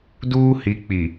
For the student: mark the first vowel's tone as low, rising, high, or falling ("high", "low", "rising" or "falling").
high